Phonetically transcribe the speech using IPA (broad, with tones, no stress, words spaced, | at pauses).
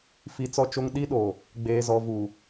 fi˨t͡sɔ˦t͡ʃo˦ŋ ɗi˦ɗoː˨ | ɡ͡beː˨zɔ˨vuː˨